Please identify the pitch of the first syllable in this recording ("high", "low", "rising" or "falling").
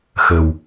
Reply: low